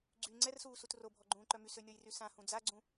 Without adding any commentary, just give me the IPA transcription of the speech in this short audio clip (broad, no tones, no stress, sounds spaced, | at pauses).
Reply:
ɡ͡ǀ y ŋ͡ǀ ɛ r s uː s u t r o bʱ ɔ ɡ͡ǃ ũː ǃ œ m y s ø nʲ ɔ j r y s ã h ũ d͡z a ɡ͡ǀ ũ